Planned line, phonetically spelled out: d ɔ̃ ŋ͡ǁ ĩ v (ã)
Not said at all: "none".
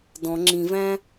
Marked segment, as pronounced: æ̃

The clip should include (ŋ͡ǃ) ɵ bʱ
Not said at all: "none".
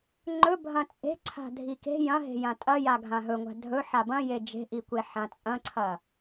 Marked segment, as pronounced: ŋ͡ǃ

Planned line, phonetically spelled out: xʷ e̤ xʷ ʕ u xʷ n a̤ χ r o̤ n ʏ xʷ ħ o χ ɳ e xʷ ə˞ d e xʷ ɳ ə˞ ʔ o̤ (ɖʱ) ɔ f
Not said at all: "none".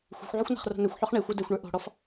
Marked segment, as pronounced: ɽ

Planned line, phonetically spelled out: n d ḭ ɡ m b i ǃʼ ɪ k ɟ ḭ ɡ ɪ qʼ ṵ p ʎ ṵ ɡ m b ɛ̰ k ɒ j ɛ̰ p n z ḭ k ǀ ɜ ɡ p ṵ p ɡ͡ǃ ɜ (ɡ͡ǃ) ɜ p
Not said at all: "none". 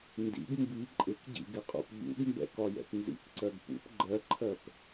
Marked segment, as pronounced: ǃʰ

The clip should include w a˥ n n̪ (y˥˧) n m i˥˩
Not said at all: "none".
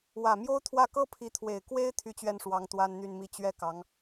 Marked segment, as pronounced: y˥˧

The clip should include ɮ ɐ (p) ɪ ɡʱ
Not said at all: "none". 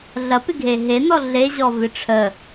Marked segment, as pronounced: p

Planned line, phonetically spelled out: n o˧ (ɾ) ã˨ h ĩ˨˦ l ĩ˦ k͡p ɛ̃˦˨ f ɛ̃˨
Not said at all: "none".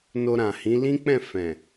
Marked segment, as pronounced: ɾ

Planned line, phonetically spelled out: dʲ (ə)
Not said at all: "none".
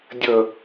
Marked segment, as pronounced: ə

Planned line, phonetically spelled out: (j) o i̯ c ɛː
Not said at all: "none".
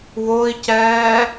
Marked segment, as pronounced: w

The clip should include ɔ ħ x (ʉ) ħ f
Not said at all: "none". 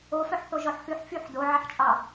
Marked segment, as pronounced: ʉ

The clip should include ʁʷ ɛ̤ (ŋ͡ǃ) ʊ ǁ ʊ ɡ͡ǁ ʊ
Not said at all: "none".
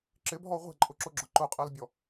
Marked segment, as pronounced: ǃʼ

